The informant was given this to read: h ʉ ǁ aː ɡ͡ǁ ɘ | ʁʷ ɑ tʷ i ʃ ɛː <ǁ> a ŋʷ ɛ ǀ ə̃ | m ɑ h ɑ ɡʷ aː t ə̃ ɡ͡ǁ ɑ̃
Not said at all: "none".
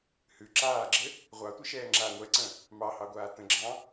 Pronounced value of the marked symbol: ŋ͡ǁ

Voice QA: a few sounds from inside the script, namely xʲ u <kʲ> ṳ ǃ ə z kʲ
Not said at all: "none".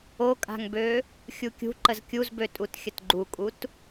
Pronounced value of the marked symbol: kʲ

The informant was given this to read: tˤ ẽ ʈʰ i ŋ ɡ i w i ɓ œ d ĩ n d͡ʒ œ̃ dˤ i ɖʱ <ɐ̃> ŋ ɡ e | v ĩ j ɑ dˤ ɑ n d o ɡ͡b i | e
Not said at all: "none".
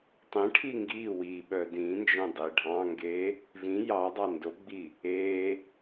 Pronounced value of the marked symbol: ɑ̃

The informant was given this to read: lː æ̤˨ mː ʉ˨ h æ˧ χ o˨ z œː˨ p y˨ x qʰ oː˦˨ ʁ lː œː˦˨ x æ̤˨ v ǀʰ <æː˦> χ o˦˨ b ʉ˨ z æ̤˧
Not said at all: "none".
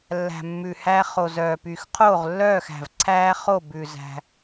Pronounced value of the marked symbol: æː˦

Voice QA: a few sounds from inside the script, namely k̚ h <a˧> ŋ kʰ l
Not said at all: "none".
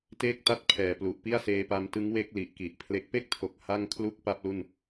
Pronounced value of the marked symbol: a˥˩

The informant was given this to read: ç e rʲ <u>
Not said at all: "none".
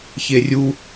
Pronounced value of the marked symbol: u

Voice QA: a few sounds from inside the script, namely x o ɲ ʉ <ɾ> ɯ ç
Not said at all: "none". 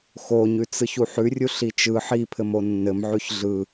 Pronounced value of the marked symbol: t͡s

